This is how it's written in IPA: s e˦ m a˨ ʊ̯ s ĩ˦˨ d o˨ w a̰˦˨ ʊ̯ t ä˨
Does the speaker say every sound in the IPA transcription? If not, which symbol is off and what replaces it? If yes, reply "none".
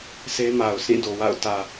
none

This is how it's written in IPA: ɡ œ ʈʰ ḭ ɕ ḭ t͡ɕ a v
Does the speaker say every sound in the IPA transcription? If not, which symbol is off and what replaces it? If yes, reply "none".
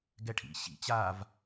œ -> ɛ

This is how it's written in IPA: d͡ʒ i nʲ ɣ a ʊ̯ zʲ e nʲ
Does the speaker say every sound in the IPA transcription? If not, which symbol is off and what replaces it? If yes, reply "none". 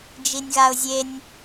none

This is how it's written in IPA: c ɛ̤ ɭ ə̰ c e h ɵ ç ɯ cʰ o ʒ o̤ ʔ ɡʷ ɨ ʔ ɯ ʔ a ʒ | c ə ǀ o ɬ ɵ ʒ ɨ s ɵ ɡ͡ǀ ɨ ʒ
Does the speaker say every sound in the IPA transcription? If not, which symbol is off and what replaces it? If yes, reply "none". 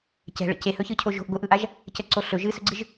none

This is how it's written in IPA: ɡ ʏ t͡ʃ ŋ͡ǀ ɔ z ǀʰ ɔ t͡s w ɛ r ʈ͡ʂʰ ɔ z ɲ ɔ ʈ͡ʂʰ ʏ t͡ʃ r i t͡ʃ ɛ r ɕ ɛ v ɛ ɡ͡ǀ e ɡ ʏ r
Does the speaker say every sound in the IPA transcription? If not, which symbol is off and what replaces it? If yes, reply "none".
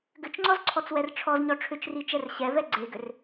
none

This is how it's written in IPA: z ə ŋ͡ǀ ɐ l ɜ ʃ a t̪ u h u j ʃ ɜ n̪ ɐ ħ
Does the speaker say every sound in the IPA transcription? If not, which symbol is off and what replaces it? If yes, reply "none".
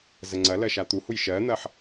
none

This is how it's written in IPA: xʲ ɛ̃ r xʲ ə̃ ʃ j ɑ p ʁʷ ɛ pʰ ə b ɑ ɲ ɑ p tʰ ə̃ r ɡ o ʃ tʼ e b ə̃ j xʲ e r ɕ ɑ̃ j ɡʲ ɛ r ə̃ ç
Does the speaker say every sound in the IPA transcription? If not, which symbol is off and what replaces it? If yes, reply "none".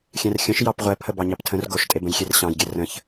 none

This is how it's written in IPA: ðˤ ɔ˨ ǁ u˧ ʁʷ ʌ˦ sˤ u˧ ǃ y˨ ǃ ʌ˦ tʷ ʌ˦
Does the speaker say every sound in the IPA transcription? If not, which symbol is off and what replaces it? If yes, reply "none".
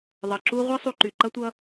ɔ˨ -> ʌ˨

